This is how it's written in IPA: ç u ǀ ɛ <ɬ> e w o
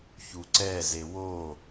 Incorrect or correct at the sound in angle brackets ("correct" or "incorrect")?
incorrect